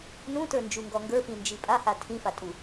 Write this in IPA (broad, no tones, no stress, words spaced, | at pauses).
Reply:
nũtə˞ nd͡ʒuŋɡɔŋɡə˞fĩ nd͡ʒipʼaha tʰĩfatʼu